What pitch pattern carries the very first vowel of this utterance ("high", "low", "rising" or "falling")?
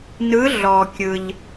rising